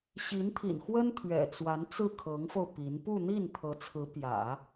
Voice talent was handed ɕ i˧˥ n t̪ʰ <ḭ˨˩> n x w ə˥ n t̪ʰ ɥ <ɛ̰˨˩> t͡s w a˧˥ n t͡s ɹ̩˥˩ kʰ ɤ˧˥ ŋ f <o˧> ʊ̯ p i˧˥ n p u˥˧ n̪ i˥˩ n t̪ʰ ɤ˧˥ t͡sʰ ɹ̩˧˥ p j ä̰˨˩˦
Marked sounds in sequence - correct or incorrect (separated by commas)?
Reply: correct, correct, correct